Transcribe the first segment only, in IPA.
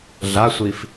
ɮ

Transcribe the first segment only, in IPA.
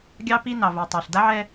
ɡʲ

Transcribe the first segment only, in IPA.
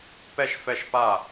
p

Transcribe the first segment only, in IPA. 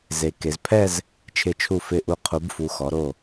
z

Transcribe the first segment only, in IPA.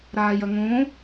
ɾ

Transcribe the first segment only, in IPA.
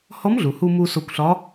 h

